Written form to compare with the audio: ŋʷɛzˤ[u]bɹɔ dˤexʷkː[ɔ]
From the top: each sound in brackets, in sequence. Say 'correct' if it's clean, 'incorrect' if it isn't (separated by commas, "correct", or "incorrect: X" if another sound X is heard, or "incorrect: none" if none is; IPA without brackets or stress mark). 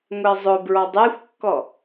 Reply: incorrect: ʊ, correct